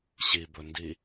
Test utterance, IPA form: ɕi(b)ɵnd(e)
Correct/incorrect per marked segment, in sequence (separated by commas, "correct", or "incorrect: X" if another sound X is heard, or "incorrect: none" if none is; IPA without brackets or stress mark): correct, incorrect: i